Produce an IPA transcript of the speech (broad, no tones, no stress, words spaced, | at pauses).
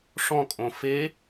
ʂɔ̃kʼõ fe